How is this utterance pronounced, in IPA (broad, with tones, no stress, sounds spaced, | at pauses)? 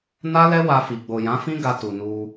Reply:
n a˦ l ɛ˦ w a˧ f i˨ ɡ͡b o˨ j ã˨˦ f ĩ˦ ɡ a˧ t u˨ n u˧